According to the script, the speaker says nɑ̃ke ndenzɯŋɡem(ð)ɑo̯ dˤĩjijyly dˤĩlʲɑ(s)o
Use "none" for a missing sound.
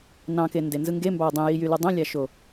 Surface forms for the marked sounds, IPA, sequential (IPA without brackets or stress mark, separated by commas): b, ʃ